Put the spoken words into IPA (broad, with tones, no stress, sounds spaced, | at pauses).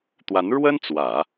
t̪ w a˧˥ n ɻ w ə˥ n t͡s w ä˨˩˦